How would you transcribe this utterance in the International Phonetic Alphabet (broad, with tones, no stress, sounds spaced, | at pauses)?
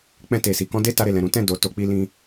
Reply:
k͡p ɛ̃˧ t e˨ s i˨ k ɔ̃˧ d e˦ t a˧ ɾ e˨ l ɛ̃˨ ɾ ũ˨˦ t ɛ̃˦˨ d o˨˦ t o˧ k͡p i˦ l ĩ˦